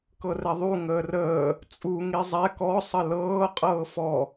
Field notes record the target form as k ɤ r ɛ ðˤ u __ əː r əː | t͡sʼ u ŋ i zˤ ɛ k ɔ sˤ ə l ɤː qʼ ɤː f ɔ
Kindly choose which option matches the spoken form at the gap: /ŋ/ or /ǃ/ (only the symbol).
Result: ŋ